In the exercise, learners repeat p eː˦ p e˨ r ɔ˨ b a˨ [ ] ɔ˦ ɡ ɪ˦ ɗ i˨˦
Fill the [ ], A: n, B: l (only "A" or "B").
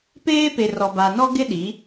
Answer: A